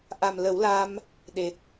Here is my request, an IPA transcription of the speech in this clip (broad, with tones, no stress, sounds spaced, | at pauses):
ʔ a˨˩ m l ə˨˩˦ w l a˧ m | ɗ e˨˩ t̚